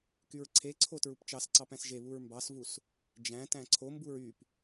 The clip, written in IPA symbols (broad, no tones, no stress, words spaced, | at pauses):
kyɹǀʰeǀʰo tɹupt͡ʃɑsǀɑp æ̃sʒeβuɹ mbɑsvus | d͡ʒæ̃ tæ̃ǀʰombuɹ yp